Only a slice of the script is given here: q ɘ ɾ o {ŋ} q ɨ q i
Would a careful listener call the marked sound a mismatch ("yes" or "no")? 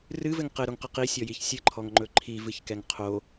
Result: no